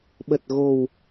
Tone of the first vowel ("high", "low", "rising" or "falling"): low